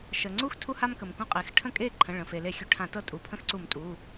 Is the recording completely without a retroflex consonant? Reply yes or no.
no